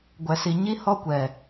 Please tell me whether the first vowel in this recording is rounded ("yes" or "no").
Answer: no